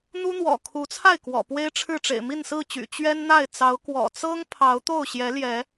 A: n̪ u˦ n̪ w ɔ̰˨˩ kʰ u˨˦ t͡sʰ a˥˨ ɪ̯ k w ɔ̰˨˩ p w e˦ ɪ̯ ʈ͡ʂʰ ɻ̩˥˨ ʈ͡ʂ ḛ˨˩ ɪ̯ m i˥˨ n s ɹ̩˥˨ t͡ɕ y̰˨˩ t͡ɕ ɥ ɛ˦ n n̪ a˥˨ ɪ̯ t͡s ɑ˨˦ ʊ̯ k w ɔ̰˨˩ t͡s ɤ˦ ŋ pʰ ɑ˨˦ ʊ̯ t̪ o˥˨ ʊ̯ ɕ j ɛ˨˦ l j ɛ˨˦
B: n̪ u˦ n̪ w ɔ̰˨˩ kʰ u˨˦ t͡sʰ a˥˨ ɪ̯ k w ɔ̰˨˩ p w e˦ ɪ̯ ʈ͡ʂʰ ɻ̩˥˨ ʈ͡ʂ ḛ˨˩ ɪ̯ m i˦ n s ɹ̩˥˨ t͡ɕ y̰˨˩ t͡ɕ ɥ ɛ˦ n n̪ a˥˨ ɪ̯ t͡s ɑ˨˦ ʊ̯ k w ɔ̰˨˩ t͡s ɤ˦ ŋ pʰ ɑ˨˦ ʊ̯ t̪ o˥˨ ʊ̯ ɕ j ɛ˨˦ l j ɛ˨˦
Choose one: A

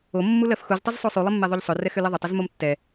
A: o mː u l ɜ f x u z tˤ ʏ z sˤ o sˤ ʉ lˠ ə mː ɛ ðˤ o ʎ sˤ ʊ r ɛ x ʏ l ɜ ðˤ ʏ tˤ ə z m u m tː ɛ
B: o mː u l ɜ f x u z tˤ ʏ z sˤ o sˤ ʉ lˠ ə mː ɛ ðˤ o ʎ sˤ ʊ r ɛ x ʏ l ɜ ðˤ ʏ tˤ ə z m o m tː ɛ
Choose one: B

